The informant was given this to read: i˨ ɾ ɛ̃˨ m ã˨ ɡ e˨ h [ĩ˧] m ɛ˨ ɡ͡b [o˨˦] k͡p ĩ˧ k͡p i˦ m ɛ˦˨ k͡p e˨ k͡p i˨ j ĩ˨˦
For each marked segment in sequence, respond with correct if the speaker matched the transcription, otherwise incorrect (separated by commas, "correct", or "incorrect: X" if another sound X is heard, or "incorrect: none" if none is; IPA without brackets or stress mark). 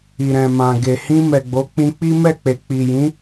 correct, correct